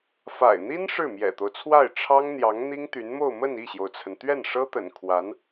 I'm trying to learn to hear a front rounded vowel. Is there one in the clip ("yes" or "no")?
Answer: yes